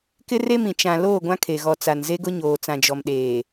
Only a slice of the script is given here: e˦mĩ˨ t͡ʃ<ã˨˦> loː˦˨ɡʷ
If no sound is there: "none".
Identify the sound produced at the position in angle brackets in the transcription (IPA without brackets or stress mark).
ã˨